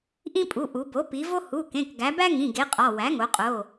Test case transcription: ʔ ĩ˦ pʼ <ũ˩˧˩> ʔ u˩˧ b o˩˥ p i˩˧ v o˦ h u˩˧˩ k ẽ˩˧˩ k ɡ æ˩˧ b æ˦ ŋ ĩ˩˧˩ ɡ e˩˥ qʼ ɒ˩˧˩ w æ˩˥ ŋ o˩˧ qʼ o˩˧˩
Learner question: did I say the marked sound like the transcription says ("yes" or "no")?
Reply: no